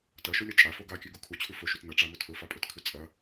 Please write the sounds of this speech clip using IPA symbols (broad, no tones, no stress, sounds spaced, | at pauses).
t ɐ ʃ ɵ lʲ ɐ t͡ʃʼ a f o ɡ a kʲ ʉ ɡ u kʰ u t͡ɕʰ ʉ f ɵ ʃ u t n ɐ ʈ͡ʂ a m ɵ tʰ ɵ f a pʼ ɵ t kʰ ʉ t͡sʼ ɐ